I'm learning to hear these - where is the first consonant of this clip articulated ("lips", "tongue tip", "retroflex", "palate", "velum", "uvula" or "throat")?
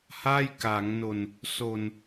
throat